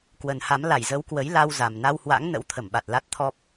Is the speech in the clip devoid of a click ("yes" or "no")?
yes